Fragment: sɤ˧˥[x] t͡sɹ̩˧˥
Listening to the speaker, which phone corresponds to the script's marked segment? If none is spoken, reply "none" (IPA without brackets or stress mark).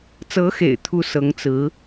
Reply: ŋ